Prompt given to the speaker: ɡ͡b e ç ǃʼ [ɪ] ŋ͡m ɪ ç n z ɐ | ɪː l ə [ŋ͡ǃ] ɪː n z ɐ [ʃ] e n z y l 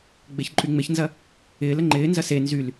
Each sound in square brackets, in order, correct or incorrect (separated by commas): incorrect, correct, incorrect